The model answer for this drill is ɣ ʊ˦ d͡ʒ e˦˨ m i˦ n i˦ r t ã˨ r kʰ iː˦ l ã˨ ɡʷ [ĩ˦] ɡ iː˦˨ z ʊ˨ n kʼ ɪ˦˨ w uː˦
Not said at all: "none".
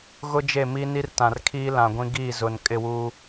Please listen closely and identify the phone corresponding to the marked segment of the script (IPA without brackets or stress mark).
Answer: ĩ˦